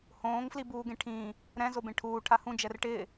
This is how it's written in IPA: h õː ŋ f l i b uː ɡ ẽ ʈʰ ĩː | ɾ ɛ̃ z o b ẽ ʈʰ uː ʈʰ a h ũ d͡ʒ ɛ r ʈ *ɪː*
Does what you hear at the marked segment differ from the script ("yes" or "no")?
no